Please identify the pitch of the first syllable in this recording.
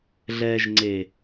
low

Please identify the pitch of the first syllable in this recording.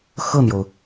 falling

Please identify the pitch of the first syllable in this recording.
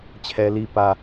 high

